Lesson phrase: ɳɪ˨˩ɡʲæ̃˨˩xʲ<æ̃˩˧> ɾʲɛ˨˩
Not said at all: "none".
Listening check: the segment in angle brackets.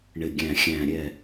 æ̃˨˩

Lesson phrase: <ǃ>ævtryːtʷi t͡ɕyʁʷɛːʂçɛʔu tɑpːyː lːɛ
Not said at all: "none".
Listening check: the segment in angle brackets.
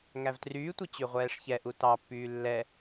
ŋ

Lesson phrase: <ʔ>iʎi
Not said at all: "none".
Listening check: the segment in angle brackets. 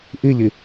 ʔ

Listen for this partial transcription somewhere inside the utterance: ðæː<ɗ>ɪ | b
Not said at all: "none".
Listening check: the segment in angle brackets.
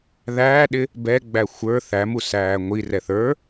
ɗ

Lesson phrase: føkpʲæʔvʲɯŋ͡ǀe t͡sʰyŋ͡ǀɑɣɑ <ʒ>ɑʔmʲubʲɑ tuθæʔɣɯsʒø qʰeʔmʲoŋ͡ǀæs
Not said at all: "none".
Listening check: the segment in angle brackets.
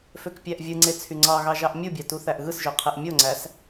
ʒ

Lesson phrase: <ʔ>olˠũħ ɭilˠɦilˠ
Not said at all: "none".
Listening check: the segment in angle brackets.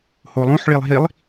h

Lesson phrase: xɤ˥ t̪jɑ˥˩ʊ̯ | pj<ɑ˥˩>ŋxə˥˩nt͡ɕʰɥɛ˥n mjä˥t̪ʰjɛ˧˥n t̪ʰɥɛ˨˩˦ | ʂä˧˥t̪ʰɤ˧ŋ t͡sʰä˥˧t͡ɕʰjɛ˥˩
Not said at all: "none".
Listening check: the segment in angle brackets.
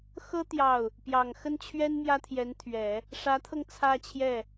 ɑ˨˩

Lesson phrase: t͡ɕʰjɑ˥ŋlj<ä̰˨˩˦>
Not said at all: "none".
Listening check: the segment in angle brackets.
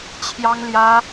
ä˥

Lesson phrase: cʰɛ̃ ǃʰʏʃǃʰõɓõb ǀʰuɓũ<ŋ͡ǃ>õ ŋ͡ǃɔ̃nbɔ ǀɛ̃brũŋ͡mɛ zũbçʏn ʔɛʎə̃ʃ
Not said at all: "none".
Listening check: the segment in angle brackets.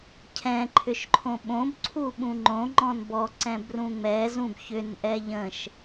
ŋ͡ǃ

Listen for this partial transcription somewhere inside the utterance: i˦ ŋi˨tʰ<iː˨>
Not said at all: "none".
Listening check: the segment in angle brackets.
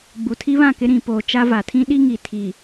iː˨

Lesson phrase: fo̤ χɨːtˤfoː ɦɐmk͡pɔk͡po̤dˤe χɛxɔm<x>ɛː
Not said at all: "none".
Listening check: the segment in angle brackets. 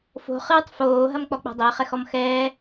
x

